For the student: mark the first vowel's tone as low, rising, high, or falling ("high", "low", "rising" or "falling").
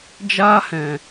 high